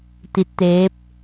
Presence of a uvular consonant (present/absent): absent